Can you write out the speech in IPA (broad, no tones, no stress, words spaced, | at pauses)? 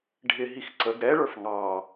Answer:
ɖʱɪɦix ǀəɡ ɾɛɭə˞f ŋɑ